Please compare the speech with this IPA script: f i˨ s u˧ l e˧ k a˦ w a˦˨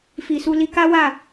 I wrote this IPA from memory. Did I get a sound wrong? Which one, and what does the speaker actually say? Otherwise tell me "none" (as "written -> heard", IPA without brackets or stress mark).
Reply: e˧ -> i˧